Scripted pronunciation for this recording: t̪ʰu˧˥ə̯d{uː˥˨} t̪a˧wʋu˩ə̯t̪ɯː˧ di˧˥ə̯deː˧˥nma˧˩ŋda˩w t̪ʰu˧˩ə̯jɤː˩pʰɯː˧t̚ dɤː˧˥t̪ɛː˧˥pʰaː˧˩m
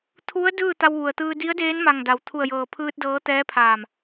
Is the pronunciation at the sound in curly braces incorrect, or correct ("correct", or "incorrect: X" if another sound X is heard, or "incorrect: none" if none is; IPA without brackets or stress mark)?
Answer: incorrect: ɯː˥˨